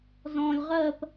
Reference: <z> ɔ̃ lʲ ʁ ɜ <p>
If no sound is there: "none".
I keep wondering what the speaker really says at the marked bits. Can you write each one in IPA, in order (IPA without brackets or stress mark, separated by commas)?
z, p